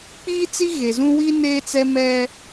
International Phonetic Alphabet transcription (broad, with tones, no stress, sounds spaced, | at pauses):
k͡p iː˦ t͡s i˦ ɣ e˨ z ũ˦ w i˦ n eː˦ t͡s ɛ˦ m ɛ˦